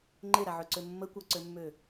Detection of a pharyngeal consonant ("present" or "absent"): present